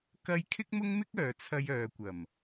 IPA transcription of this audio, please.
k ɐ˥ j kʰ ɪ˥ k̚ m ʊ˥ ŋ m ɪ˥ k̚ œː˨ t͡sʰ ɐ˧ j œː˨ kʷ ɐ˨˩ m

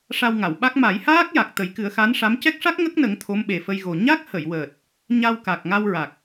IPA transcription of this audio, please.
ʂ a˧ w ŋ a˨˩˨ w ɓ a˦˥ k̚ m a˨˩˦ j h aː˦˥ k̚ j a˨˩ k̚ t̪ ə˨˩˦ j k ɨ˨˩˦ ə̯ x a˧˥ n ʂ a˧˥ m c ɛ˦˥ k̚ ʂ a˦˥ k̚ ŋ ə˦˥ k̚ n ə˨˩˦ ŋ t̪ʰ o˧˥ m ɓ e˨˩ f ə˧ j ɣ o˨˩ ɲ a˦˥ k̚ h ə˨˩˨ j w əː˨˩ t̚ | ɲ a˧ w k a˨˩ k̚ ŋ a˧ w ɹ a˨˩ k̚

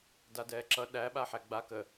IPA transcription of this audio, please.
d a d ɛː ǁ ʌ ɗ æ ɓ a ħ æ ɡ͡b a k ə

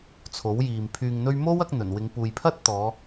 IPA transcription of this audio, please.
t͡sʰ o˨˥ w j iː˨ m pʰ yː˨ ŋ n̪ ɵ˧ ɥ m o˥ w ɐ˨˥ k̚ n̪ ɵ˨˩ n w ɪ˨˧ ŋ p uː˨ j pʰ ɐ˥ t̚ t̪ ɔː˨˧

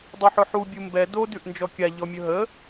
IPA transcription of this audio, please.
dˤ ɵ ħ ɵ ħ u bʲ u m b ɛ d o d ʉ ʔ n d͡ʒ ɔ kʲ a ʎ ɔ mʲ ɵ ɦ ə

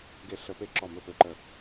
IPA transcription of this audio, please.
ɡ e˧˩ ɬ ə˧˩˧ p e˧˩ ǁ ɔ˧˩ m ɵ˧˩ p ø˧˩ ǃ ə˧˩

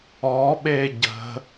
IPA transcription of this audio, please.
ɔ ɓ e ɟ ə̤

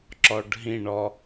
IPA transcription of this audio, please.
ǁ ɔ ɖ ɦ ĩ ɳ ɔ

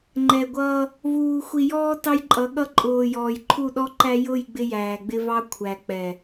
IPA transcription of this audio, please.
ŋ͡ǃ ɛ˨ ɡʷ ʌː˦ | v uː˨ xʷ i˨ j ɔː˦ t ɑ˦ j ǃʼ ʌ˨˦ ɠ ʌ˦ ǃʼ ʊː˨ j ɔː˨ j ǃʰ u˦˨ ɗ ɔ˦ ǃ æ˦ j ʊ˦˨ j ɡ͡b ɪ˦ j æː˨ ɡ͡b ɪ˦ v ɑ˦ kʷʰ æ˨ k͡p ɛ˨

